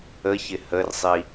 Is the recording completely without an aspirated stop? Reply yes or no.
yes